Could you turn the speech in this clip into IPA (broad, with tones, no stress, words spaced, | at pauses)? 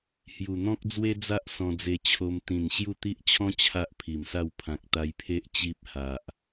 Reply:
hju˨˩n̪ɔ̃˦k̚d͡zwe˦d͡za˦ʔ sɔ̃˧d͡ze˧t͡ɕʰo˧m t̪ĩ˨˩n ɕju˥˧t̪i˦ʔ t͡ɕʰɔ̃˦ t͡ɕʰa˦ʔpʰi˨˩msa˥˧w pʰã˨k̚t̪a˧jpʰe˦ʔ t͡ɕi˦p̚ ha˨ʔ